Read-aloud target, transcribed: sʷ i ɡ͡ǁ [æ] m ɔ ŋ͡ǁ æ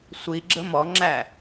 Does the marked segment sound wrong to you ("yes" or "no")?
yes